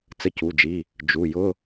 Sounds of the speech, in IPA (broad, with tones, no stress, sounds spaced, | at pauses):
t͡s ə˧˥˧ c u˩˧˩ d͡ʒ i˩˧˩ | d͡ʒ u˩˧˩ j ʊ˧˥˧